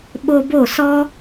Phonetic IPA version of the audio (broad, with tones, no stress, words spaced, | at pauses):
ɓo˧bo˦˨sɔ˦